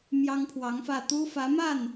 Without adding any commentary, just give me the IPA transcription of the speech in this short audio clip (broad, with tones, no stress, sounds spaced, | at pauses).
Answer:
m j ɑ˥ ŋ pʰ w ɑ˧˥ ŋ f ä˥˩ t̪ u˥ f ä˧˥ m a˥˩ n